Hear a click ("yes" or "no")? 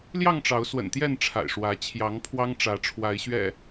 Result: no